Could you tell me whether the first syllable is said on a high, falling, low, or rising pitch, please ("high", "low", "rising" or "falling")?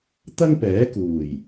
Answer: high